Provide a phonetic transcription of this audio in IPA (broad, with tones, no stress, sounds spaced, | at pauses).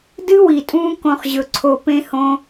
d ɨ˦ w i˨ tʼ ũː˧ k õ˦ χ ʑ ɵ˧ ǀʰ o˧ p ẽ˦ h õ˦